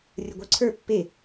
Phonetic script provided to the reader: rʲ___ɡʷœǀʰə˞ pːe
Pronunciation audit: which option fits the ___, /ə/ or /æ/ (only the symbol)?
ə